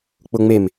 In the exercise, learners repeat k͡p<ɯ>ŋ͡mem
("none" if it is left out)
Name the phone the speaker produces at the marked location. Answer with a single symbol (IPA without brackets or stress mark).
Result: ʊ